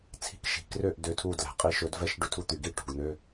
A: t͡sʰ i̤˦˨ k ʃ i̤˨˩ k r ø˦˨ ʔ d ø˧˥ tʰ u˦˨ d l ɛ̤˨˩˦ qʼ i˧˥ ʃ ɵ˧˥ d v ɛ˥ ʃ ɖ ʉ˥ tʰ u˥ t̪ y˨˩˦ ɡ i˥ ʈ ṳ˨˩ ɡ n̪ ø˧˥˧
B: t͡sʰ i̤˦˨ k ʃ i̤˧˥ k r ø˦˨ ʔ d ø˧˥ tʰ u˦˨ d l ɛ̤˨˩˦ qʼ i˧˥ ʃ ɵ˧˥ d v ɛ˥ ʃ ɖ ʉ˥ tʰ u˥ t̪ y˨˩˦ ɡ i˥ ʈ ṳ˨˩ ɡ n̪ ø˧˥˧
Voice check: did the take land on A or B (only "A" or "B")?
A